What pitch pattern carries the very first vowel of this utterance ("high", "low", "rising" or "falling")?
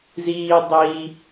high